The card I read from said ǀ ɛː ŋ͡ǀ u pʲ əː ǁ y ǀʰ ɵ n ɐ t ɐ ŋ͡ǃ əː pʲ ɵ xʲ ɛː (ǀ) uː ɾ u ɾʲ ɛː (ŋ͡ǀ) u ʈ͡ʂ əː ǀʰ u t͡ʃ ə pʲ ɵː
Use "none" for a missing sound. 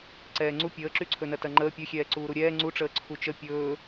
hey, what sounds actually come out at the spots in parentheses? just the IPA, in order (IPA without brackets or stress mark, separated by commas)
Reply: ǀ, ŋ͡ǀ